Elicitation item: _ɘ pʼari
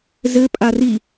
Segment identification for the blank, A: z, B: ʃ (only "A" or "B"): A